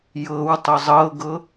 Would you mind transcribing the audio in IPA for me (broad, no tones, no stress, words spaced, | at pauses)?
jɤw tˤozˤɤɡɤ